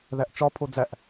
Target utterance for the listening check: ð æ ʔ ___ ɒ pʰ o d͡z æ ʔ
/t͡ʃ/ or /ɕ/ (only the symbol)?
t͡ʃ